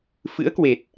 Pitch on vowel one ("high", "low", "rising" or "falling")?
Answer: rising